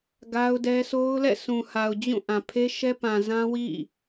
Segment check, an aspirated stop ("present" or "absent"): present